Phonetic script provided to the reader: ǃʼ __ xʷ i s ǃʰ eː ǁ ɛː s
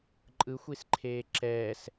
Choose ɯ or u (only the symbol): ɯ